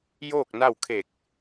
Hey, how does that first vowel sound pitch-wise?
falling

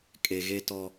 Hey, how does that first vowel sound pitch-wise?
low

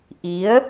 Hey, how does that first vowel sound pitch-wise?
rising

